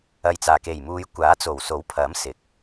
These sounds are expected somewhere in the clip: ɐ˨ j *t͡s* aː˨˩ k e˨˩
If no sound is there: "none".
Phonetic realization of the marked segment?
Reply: t͡s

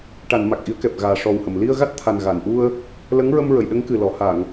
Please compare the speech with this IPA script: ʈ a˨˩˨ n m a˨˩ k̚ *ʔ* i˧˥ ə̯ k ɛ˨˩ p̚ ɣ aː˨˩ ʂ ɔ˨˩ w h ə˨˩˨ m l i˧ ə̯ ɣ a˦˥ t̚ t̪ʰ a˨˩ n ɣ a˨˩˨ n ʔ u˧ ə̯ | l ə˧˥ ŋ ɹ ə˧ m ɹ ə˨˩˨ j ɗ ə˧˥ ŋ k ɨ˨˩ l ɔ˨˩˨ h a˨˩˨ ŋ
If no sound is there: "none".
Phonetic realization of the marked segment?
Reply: ʔ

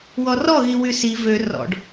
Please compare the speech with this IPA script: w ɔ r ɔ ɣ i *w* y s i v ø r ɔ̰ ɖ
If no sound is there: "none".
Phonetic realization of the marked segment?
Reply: w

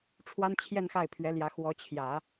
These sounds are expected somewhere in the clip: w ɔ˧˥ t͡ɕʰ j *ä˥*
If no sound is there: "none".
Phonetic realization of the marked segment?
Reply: ä˨˩˦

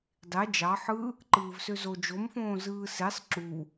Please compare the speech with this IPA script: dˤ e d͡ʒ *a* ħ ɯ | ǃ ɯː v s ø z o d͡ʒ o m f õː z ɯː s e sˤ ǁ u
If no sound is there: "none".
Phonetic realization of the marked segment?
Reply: ɑ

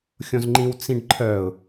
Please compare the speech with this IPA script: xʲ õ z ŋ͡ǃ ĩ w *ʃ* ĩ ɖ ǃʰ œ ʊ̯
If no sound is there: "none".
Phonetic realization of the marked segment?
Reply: t͡s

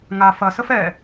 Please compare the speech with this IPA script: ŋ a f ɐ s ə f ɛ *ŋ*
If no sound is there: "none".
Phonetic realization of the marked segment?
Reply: none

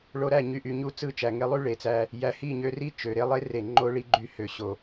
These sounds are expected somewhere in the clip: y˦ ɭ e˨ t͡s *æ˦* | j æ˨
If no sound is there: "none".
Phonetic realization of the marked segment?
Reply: æ˧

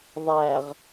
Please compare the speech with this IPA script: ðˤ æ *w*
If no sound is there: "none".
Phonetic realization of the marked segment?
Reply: ʁ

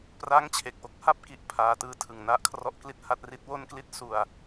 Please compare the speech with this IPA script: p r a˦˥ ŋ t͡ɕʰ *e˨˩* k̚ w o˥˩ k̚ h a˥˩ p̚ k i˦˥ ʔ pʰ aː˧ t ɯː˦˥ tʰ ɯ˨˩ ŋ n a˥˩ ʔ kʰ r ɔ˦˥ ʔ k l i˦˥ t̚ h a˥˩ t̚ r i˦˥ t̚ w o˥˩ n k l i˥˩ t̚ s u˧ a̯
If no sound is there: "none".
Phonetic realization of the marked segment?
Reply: e˨˩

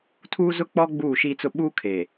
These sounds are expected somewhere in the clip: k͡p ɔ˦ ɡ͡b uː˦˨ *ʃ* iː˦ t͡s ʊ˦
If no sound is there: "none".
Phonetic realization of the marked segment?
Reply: ʃ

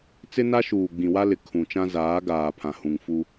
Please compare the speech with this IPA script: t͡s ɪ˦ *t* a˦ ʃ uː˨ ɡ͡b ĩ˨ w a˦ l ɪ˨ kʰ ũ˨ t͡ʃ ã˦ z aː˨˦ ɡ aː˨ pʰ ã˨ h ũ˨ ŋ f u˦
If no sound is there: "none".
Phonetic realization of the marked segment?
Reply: n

